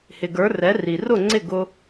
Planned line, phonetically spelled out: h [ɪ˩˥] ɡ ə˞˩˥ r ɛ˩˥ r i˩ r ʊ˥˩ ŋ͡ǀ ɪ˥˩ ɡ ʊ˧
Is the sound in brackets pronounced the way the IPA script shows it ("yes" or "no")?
no